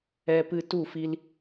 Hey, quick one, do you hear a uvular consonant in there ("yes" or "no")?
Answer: no